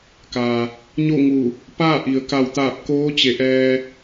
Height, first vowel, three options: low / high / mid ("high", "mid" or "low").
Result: low